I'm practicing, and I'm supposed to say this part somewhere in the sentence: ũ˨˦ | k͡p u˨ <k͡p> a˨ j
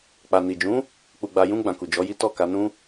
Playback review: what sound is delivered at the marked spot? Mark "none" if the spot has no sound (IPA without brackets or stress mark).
ɡ͡b